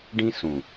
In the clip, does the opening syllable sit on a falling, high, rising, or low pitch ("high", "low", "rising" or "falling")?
high